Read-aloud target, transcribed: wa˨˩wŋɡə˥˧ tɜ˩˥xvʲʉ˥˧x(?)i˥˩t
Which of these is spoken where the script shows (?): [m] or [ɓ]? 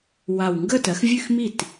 m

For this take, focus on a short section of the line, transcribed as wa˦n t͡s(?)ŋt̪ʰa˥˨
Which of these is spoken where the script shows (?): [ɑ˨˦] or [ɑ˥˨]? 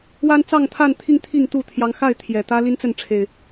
ɑ˥˨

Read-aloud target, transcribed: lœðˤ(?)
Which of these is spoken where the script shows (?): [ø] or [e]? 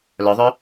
ø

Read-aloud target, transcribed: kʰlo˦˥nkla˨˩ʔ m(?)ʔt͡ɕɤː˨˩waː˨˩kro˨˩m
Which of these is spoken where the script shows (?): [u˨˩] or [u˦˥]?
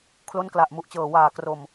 u˨˩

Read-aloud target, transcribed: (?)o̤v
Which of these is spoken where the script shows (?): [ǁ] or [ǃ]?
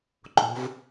ǃ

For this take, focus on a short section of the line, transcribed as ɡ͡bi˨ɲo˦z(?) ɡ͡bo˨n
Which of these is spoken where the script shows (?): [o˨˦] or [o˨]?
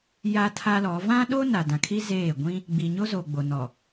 o˨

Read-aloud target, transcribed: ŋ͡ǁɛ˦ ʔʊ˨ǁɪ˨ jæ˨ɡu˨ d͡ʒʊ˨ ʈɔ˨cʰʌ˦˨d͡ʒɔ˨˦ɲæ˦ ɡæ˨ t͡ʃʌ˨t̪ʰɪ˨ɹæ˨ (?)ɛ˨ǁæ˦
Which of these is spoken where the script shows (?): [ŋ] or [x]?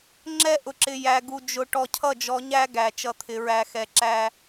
x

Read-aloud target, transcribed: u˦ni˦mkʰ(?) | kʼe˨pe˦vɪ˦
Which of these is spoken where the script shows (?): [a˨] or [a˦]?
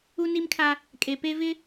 a˦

